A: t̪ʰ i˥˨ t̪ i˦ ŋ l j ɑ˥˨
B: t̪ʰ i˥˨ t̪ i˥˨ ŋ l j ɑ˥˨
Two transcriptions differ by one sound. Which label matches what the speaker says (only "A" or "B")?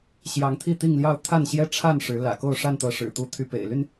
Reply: B